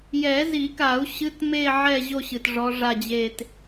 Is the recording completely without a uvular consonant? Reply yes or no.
yes